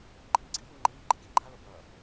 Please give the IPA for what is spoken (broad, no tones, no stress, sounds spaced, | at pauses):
ǃʼ i ɡ͡ǀ iː ŋ͡ǃ iː ɡ͡ǃ e kʲ e ɡ͡ǃ a l o b ʌː